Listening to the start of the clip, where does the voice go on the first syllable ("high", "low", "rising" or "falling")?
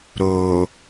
low